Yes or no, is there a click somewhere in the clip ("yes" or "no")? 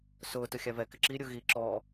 yes